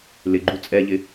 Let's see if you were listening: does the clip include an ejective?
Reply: yes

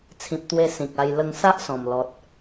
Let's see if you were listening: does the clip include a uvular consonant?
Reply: no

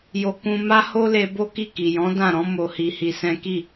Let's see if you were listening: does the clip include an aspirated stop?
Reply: no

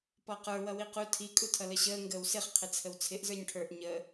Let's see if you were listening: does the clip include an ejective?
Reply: yes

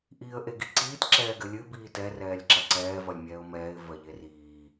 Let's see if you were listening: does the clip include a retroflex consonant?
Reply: no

